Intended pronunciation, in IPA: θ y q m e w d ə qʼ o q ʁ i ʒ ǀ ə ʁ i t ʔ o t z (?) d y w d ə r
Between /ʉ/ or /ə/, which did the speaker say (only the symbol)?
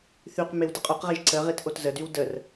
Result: ə